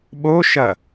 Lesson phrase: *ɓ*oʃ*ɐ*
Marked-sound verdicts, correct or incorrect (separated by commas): correct, correct